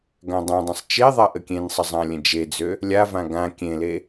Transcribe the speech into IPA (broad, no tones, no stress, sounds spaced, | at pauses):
ɡ ã dˤ ã dˤ ə̃ sˤ t͡ʃ e ðˤ a ʔ ə kʲ ẽ n sˤ ə zˤ ã lʲ ə̃ d͡ʒ e d͡z ø | lʲ a v ã ɡ ã kʲ ẽ l e